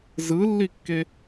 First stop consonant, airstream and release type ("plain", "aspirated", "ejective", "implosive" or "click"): plain